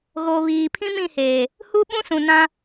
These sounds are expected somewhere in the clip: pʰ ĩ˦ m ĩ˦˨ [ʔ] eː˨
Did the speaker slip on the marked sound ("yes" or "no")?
yes